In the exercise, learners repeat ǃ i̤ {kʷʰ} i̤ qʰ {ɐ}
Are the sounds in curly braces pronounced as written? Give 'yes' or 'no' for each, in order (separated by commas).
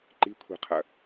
yes, yes